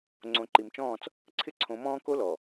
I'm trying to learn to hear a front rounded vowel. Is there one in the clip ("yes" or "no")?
no